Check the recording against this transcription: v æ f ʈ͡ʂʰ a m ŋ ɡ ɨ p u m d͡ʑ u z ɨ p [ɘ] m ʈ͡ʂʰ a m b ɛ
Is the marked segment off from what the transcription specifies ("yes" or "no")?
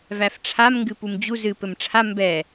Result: no